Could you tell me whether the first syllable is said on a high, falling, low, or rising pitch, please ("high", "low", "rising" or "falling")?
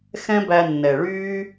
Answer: high